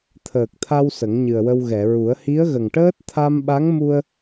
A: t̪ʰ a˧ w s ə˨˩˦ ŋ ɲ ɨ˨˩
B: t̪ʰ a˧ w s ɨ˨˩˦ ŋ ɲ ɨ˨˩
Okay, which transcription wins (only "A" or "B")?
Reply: A